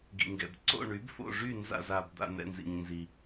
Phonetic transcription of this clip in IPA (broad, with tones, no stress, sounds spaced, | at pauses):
ɡ ḭ˨ ŋ ɡ ɛ̰˨ b ǀ o̰˥˨ ɳ y˨˥ b f o̰˥˨ ʐ y˥˨ n z a̰˥˨ z a˨ b d̪ a̰˥˨ n̪ ɛ̰˥˨ n z ḭ˨ ɲ n z i˨